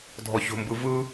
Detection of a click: absent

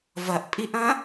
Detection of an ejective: present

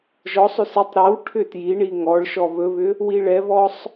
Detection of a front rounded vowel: present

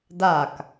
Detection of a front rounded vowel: absent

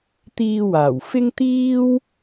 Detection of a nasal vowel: absent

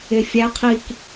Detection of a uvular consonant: present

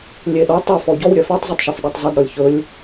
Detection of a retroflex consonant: absent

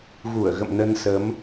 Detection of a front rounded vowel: absent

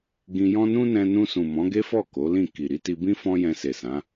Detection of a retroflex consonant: absent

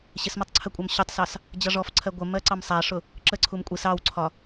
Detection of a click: present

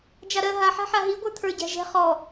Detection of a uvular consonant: present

